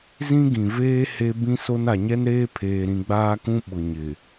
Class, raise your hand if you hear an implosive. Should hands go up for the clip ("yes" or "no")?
yes